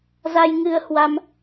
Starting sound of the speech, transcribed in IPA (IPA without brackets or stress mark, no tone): z